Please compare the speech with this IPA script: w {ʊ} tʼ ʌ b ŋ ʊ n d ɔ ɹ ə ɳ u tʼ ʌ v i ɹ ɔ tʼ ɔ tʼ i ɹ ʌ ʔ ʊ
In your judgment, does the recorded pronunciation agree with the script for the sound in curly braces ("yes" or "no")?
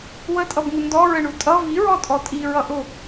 no